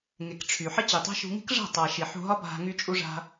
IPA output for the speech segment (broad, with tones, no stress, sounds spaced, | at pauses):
ŋ e˨ k ʈ͡ʂʰ y˨ ħ ə˦ t͡ɕ i˨ tˤ a̤˦ ʃ ṳ˧ ŋ i̤˦ k ʐ a̤˦˨ tˤ a˨ ʃ i˨ ħ ṳ˧ ɦ ɒ˦ bʱ a̤˧ ŋ y˧ t͡ʃʼ u˧ ʐ a̤˧